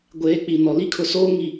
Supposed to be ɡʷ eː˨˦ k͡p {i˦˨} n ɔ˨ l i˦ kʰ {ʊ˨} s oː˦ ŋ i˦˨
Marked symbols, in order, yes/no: no, yes

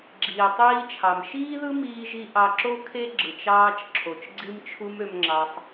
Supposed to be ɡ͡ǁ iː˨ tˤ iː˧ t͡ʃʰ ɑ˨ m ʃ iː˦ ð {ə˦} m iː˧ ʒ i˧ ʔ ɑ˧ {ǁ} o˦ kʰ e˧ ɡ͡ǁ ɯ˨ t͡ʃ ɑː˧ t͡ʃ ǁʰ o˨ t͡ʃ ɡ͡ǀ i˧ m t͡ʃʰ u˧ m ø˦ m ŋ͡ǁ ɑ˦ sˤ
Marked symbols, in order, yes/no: no, yes

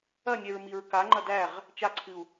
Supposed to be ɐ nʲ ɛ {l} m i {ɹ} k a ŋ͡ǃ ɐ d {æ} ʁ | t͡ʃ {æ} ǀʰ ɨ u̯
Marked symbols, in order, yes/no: no, yes, yes, no

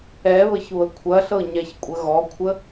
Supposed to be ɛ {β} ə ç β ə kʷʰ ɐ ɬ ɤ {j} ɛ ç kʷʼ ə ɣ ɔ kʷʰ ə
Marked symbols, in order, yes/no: yes, no

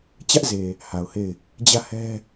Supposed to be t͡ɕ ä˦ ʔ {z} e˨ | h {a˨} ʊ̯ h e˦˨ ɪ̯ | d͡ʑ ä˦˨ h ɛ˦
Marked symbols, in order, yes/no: yes, yes

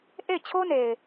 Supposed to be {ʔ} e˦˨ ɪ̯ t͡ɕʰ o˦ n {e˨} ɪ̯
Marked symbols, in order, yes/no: yes, yes

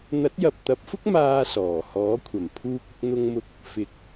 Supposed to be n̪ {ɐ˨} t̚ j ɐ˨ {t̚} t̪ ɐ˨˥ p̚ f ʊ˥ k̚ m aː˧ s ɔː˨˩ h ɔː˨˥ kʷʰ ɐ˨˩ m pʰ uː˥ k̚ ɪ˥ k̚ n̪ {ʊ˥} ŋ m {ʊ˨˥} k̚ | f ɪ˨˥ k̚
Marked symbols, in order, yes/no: no, no, yes, no

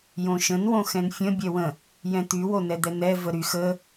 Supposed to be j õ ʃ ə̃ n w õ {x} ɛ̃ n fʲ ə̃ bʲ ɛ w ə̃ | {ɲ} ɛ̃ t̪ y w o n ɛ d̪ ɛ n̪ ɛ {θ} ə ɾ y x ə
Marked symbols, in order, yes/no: yes, no, no

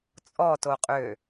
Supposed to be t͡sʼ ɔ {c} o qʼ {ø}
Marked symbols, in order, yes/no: no, yes

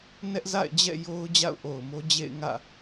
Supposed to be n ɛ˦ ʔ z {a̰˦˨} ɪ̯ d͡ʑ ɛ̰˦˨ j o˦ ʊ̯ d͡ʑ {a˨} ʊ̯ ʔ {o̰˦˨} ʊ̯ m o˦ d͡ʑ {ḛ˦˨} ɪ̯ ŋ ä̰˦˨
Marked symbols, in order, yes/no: yes, no, no, yes

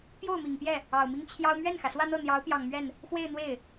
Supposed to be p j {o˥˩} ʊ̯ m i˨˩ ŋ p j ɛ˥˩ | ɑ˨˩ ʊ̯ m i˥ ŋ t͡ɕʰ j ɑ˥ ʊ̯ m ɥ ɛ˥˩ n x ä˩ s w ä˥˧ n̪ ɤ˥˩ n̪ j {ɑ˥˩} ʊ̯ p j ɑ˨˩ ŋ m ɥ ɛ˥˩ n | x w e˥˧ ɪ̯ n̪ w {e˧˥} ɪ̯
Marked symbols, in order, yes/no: yes, no, no

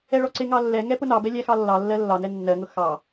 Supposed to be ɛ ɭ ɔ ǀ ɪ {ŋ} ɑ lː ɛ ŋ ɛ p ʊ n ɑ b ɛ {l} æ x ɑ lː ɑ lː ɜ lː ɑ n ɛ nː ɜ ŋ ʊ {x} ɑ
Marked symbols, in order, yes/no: yes, no, yes

